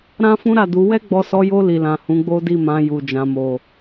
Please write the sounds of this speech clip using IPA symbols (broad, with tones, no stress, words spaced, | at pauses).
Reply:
ɾã˦fũ˦ɾa˦˨du˨˦ wɛ˦ɡ͡bɔ˧sɔ˧jo˧ li˨lã˨ hũ˨˦ɡ͡bo˦di˦˨mã˧ ju˨d͡ʒã˨mo˨